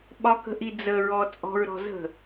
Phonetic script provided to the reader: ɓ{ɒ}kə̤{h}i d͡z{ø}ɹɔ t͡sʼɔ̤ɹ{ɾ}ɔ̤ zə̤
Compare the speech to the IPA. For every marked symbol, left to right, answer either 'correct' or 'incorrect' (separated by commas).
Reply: correct, incorrect, incorrect, correct